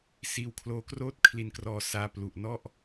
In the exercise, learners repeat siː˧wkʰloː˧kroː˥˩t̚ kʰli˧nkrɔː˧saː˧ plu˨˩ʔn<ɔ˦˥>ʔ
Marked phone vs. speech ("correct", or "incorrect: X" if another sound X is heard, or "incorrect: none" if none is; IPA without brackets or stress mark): incorrect: ɔ˥˩